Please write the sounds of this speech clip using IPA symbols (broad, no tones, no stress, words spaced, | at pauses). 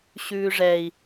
ɕʉːʐɛi̯